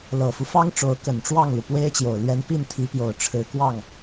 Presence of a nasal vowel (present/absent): absent